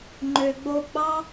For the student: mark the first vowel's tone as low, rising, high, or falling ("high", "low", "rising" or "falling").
low